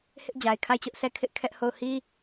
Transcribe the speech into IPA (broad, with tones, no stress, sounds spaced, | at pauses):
h ɪ˦ ʔ d͡ʑ a˨ ɪ̯ kʰ a˦˨ ɪ̯ t͡ɕ ʊ˦ ʔ s ɛ˦ kʰ ɪ˦ ʔ kʰ ɛ˦ ʔ h o˦˨ ʊ̯ h i˦